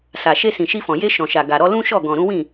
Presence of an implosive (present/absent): absent